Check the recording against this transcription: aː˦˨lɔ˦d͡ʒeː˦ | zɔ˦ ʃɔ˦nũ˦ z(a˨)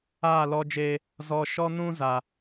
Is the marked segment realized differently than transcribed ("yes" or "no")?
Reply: no